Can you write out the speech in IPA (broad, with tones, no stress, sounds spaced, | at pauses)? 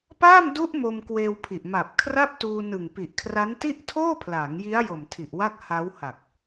p aː˥˩ m d u˦˥ ʔ m o˧ m k w eː˧ w pʰ i˨˩ ʔ m a˨˩ p̚ kʰ r a˥˩ p̚ t uː˧ n ɯ˨˩ ŋ p i˨˩ ʔ kʰ r a˦˥ n t i˥˩ ʔ tʰ oː˥˩ pʰ l aː˩˦ ŋ j i˦˥ a̯ j o˨˩ m tʰ i˨˩ ʔ w a˥˩ k̚ h a˦˥ w h a˨˩ k̚